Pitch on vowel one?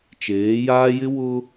rising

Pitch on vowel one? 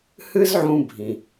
high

